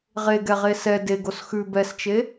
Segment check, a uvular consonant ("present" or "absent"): present